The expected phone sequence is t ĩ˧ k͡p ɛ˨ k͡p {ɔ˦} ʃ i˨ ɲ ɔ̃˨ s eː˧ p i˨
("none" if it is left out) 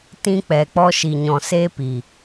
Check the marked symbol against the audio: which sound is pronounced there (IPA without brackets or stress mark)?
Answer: ɔ˧